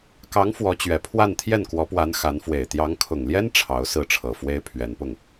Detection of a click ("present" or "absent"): absent